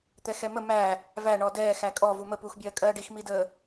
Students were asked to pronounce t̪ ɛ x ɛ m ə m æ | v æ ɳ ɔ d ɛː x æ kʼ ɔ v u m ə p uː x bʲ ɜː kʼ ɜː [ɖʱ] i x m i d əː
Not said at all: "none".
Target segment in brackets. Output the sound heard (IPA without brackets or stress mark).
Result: ɖ